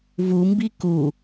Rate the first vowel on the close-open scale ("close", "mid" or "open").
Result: close